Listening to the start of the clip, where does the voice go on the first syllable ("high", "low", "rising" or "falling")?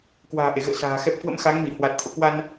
low